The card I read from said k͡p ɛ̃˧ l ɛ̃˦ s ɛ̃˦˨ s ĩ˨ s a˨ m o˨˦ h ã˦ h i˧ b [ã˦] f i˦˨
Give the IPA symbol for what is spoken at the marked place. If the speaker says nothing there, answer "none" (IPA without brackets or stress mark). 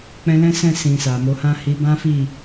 ã˦